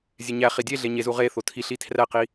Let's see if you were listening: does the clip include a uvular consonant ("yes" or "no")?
yes